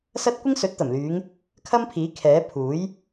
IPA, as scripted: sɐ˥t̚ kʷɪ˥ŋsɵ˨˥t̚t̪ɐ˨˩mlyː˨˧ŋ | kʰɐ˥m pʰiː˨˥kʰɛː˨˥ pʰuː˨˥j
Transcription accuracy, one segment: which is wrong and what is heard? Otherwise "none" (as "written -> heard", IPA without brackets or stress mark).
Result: none